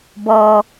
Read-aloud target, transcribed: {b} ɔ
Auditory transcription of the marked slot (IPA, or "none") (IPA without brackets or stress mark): b